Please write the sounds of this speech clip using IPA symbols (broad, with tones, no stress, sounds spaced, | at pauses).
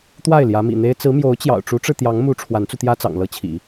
t̪ w a˥˩ ɪ̯ l j ä˧˥ m ḭ˨˩ n̪ e˥ ɪ̯ t͡s ɹ̩˧˥ m j o˧˥ ʊ̯ t͡ɕ j ɑ̰˨˩ ʊ̯ ʈ͡ʂ u˧˥ ʈ͡ʂ ɻ̩˧ t̪ j ɑ˧˥ ŋ m u˧˥ ʈ͡ʂʰ w a˧˥ n t͡s u˧ t̪ j ä˥ t͡s ɑ̰˨˩ ŋ l ɤ˧˥ t͡ɕʰ ḭ˨˩˦